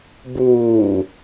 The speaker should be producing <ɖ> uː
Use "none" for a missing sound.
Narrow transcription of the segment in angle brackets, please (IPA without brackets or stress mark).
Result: b